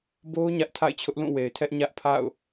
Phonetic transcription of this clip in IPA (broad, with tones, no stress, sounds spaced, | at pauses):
b o˦ ʊ̯ ɲ ä˦ ʔ tʰ a̰˦˨ ɪ̯ t͡ɕʰ ʊ˦ ʔ l ũ˦˨ w e˨ ɪ̯ tʰ ɛ˦ ʔ ɲ ä˦ ʔ pʰ a̰˦˨ ʊ̯